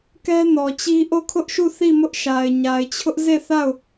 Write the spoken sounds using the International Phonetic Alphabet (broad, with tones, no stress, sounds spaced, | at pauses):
k ɛ˦ n ɔ˨ t͡ɕ i˦ ʔ o˦˨ kʰ ʊ˦ ʔ ʃ u˦˨ θ i˦˨ m ʊ˦ ʔ ʃ a˨ ɪ̯ ɲ a˨ ɪ̯ t͡ɕʰ ʊ˦ ʔ z e˦˨ θ a˦˨ ʊ̯